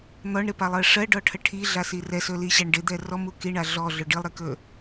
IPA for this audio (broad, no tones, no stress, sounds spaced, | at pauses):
n̪ ɔ ɳ ɾ ɪ p a lˠ ɜ ʂ ɜ ɖ ɔ ʈʰ ə ʈʰ i ɮ a s i r ɛ s ɵ l i ɕ æ ɳ ɖ ɪ d̪ ɛ r ɔ m u k i ɳ a ɮ ɔ ɮ ɵ ɖ i lˠ ɾ ɪ k ɵ